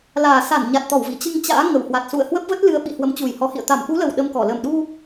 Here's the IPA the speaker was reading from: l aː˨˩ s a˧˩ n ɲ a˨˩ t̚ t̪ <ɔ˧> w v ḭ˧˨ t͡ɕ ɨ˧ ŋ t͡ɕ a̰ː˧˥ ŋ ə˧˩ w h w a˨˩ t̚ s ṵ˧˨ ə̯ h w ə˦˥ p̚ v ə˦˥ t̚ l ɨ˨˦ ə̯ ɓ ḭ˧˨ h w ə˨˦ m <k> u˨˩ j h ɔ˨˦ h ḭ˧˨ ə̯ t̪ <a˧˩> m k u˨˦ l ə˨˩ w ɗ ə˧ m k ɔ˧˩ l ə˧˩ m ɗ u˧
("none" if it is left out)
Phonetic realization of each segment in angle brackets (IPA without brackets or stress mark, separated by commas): ɔ˧˩, t͡ɕ, a˧˩